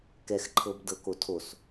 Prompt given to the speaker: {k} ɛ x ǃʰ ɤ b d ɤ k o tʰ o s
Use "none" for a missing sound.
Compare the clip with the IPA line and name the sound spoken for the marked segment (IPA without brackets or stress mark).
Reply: k